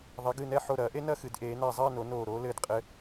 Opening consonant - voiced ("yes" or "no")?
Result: yes